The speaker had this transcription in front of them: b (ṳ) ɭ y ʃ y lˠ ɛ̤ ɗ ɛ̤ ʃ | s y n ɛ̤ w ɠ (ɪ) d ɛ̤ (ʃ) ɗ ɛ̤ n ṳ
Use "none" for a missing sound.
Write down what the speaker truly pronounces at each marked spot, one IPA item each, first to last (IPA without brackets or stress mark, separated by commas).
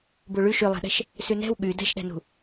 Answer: u, y, ʃ